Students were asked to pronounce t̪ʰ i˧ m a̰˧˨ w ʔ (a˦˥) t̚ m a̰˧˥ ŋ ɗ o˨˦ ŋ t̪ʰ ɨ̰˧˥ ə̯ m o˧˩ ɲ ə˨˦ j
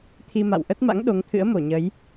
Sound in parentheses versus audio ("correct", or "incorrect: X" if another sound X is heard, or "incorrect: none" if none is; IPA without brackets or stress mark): incorrect: ə˦˥